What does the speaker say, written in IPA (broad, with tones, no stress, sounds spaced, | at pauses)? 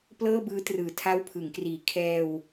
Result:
p l ɤː˥˩ b ɯː˦˥ t r ɯː˨˩ tʰ a˦˥ w pʰ ɯ˩˦ ŋ k r iː˨˩ kʰ ɛː˧ w